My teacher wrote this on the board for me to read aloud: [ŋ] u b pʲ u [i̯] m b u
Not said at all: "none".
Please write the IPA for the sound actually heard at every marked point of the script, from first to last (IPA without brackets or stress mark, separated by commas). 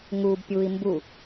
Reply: ŋ, i̯